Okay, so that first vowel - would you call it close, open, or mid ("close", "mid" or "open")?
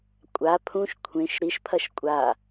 open